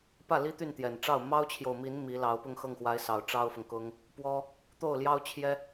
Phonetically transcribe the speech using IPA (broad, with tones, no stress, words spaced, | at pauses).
pä˥˩li˥t̪y˥˩nt̪jɛ˨˩n ʈ͡ʂɑ˥˩ʊ̯ mɑ˥ʊ̯t͡ɕʰjo˨ʊ̯mi˧˥n mi˧˥lɑ˧˥ʊ̯ pʊ˥˧ŋxɤ˥˩ŋxwa˧˥ɪ̯sɑ˨˩ʊ̯ ʈ͡ʂɑ˥ʊ̯fʊ˨ŋkʊ˥ŋ | pwɔ˥ | t̪o˥˩ʊ̯ljɑ˥ʊ̯t͡ɕʰjɛ˥